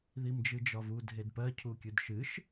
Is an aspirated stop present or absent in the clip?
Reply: present